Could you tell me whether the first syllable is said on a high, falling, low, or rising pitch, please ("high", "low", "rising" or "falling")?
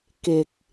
low